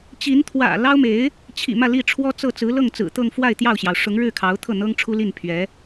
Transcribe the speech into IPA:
t͡ɕ i˧˥ n t̪ʰ w ä̰˨˩ l ɑ˥ ʊ̯ m e˧˥ ɪ̯ | t͡ɕʰ ḭ˨˩ m ä˥˧ l i˥˩ ʈ͡ʂʰ w ɔ˥ t͡s ɤ˥˩ t͡s ɹ̩˧˥ l ɤ˥˩ ŋ t͡s ɹ̩˨˩ t̪ ɤ˥˧ ŋ f w a˥˧ ɪ̯ t̪ j ɑ˥˩ ʊ̯ ɕ j ɑ˩ ʊ̯ ʂ ʊ˧˥ ŋ ɻ ɻ̩˥˩ kʰ ɑ˧˥ ʊ̯ t̪ʰ ɤ˥˩ n̪ ɤ˥ ŋ ʈ͡ʂʰ u˥ l i˥˩ n pʰ ɥ ɛ˧˥

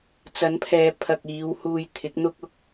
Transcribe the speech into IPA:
t͡s ɐ˨˥ n pʰ ɛː˨˧ pʰ ɐ˨ k̚ iː˨˧ w h uː˧ j t̪ʰ ɪ˨˥ k̚ n̪ ʊ˥ k̚ ʊ˧ k̚

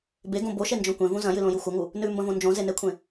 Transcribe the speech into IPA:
b e ɡ õ b o ʃ e n d͡ʒ õ kʷ ẽ v ũ z ɐ̃ j ɨ l õ j u xʷ ɐ ŋ u | n ʉ m b ɐ̃ v õ n d͡ʒ õ z e n e kʷʰ ẽ

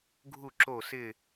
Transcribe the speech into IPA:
ɡʱ u˥˧ ǁ o˥˧ s ɪ˥˧

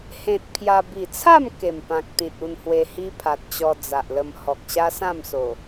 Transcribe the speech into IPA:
h ẽ˨ t̚ pʰ j a˧ b i˨˩ t͡sʰ a˥˧ m k e˨˩ m p ã˨ k̚ t̪ ĩ˨ t̚ u˧ n h w e˧ h i˦ pʰ a˨ t̚ t͡ɕ ɔ˧ d͡z a˨ ʔ l ə˧ m h ɔ˨ k̚ ɕ a˦ s ã˥˧ m s o˨˩

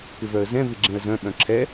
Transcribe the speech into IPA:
p ɪ v œ ə̯ z ɛ̃ v ɪ ɡ͡ǁ ẽ ə̯ z œ̃ ɓ œ̃ ǁʰ ɛ

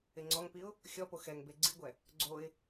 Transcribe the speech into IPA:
ɪ ŋ͡ǀ ɔ ŋ p i ʊ̯ | xʲ ɔ p o x ɛ ŋ b e ɡ͡ǀ i ɡʷ ɛ | ɡ͡ǀ o ɪ̯

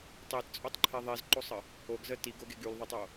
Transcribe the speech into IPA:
tˤ e t t͡sʼ o tˤ ǃʰ e ðˤ i z ǃ o sˤ ə | o ɡ z ə t i ɡ o ɡ e ɡ y l ðˤ ɐ tˤ o

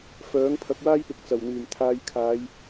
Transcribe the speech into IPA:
f œː˨˥ ŋ pʰ ɐ˨˥ k̚ w aː˥ j p ɪ˨ k̚ t͡s ɐ˨˩ w n̪ yː˨˩ m t̪ʰ aː˧ j kʰ aː˨˧ j

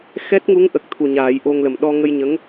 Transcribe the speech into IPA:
x ɛ˦˥ t̚ ŋ u˧˥ ŋ ʔ ə˨˩ k̚ t̪ʰ u˨˩ ɲ aː˨˩˦ j ʔ o˧ ŋ l ə˨˩ m ɗ ɔ˧ ŋ ə˧ j ɲ ə˧˥ ŋ

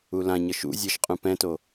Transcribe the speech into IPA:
u l ã ɲ ʌ ʃ ṵ zʲ e ʃ qʼ ũ p ɛ̃ t o

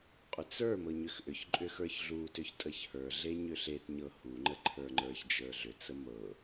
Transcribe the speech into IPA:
qʼ ʏ t͡s ə˞ m ɤ ɲ ʏ x ʔ ʏ ç ǃʼ ʏ x ə˞ ç ɮ u t ʏ ç tʼ ə ç h ə˞ ɮ e ɲ ʏ ɬ e t ɲ ɤ h u ŋ͡ǃ ə ǃʰ ə˞ ŋ͡ǃ ə˞ ç d͡ʒ ə˞ ɮ ʏ t͡s ə m ɤ

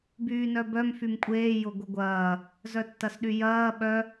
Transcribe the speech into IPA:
b yː n œ b œ m f y m kʷʼ eː j ʊ ɡʷ ə ɡʷ ɐː | z œ tː ɐ s ɗ y j ɐː ɓ œ

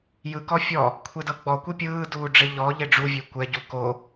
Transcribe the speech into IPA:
j ɯ k ɔ fʲ ɔ | kʷʰ e d ɤ ɡ͡b ɔ kʷ i pʲ ɯː d uː ɖ͡ʐ e ʎ ɔ ʎ e ɖ͡ʐ u vʲ e kʷ ɛ ɟ u k o

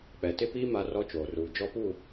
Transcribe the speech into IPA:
k͡p ɛ˨ t ɪ˦ p iː˦ m a˦ r ɔ˦ t͡ʃ oː˨ r uː˨ d͡ʒ ɔ˦ p u˦˨

